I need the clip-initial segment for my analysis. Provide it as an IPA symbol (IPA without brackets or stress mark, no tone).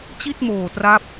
t͡ɕ